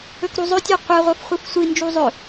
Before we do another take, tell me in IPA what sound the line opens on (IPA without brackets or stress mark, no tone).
ɵ